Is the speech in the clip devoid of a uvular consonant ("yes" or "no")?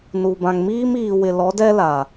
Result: yes